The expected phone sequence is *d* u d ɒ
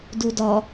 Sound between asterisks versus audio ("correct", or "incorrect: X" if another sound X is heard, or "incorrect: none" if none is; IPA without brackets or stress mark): correct